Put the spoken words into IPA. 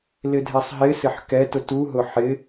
l ɪ dʱ ɛ sˤ ɦ ɪ s ɪ ħ k ɛ t ʊ t u ɦ ʊ ħ ɪ

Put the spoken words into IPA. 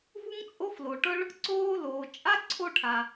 v u˥ ŋ t͡sʼ o˥ f l oː˩ ʈ ɤ˥ ɭ | ǀ oː˥ l oː˩ t͡ʃʼ a˥ ǀʰ o˥ ʈʰ a˩

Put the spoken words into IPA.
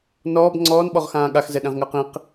n ɔː b ŋ͡ǀ ɔː n ɓ ɔ ʁ x ãː ɠ a x z ɛ ɗ ɛ̃ ʁ ŋ əː q ĩ q

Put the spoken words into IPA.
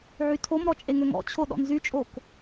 ʕ y tʰ o m ɾ ɔ t͡ʃʼ e ŋ ø ŋ ɔ̰ t͡ɕʰ o ɗ ɔ̰ n z y t͡ʃʼ o k

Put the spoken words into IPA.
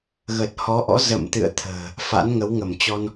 ɣ ə˨˩ t̚ h ɔ˨˦ ʔ ɔ̰˧˥ z ə̰˧˨ m t̪ ɨ̰˧˨ ə̯ t̪ʰ ə̤ː˨˩ | f a̰˧˥ n ŋ ə˨˦ w ŋ ə˧˩ m t͡ɕ ɔ˧ n

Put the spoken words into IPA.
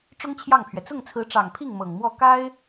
ʈ͡ʂ ʊ˥ ŋ t͡ɕʰ j ɑ˥˩ ŋ pʰ ɥ ɛ˩ t͡s ʊ˥˩ ŋ t͡sʰ ɹ̩˧˥ ʈ͡ʂ ɑ˨˩ ŋ pʰ i˥˩ ŋ m ɤ˨˩ ŋ m w ɔ˥˩ k a˥ ɪ̯

